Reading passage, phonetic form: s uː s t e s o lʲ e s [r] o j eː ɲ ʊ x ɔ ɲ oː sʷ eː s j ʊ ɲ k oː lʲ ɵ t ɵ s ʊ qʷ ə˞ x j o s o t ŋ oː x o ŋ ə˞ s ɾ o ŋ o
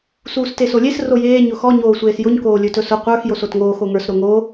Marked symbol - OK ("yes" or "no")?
yes